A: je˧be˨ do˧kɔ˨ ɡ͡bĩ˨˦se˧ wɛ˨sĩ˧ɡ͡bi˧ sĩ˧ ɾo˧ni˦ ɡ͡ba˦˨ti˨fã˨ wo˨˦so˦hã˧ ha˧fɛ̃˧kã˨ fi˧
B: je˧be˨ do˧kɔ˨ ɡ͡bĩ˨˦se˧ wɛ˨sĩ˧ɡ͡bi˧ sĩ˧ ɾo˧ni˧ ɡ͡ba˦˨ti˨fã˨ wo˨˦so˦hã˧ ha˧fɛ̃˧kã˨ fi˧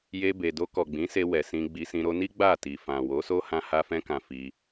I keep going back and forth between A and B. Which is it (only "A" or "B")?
A